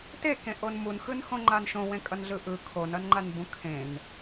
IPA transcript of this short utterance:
tekẽʔon munxɯnhõŋ͡ǃan ʃõwẽkʼʌnɮɯ ʔɯ kʰonʌnŋ͡ǃanbũ kʰẽn

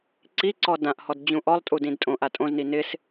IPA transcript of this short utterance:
ǀiǀɔ dãʔhɔd d͡ʑũʔɔlˠ tʼudĩdtʼõʔ atʼõzni nɪs

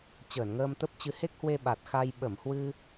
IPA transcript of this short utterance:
t͡ɕəː˧˩nŋəː˧mt̪ə˦˥p̚t͡ɕɨ˧ he˦˥k̚hwe˧ɓa˨˩t̚ xa˧j ɓə˧˩mhwɨ˧

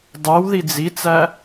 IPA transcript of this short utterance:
dˤew ðid͡zit͡sæ

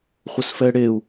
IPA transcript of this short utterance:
χʷəsfɛɽeu̯

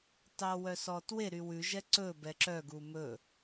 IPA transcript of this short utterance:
tɑwœsɔtwe ɾywʉ ʒɛǀɵ bɛǁœ ɡumɵ

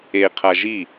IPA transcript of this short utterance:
eqʰa ʒi

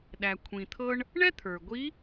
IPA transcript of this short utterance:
ɗæ˩kʷʰĩ˩t̪ʰɤ˧ɳ | ɳɛ˥t̪ʰə˞˩ɡʷi˧˥

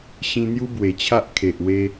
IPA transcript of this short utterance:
ɕĩ˧n̪ju˦bwe˨˩t͡ɕʰa˦ʔ kʰe˨ʔwe˧

